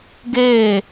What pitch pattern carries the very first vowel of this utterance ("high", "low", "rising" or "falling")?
falling